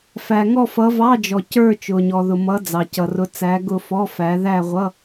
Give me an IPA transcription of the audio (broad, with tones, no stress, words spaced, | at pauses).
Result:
fæ˩ ŋɔ˦˨fʌ˨˦ vɑ˧˥˧d͡ʒɔ˩ cə˞˦˨ t͡ʃʊ˩ɲɔ˩ðʊ˩ mʌ˨˦d͡zɑ˩cʌ˩rʊ˨˦ t͡sæ˨˦ɡʊ˦˨fɔ˧˥˧fæ˨˦ ðæ˦˨ʁʷʌ˧˥˧